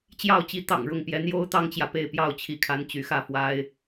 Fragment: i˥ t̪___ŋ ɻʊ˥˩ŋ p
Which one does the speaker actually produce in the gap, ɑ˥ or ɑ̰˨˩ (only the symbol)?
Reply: ɑ̰˨˩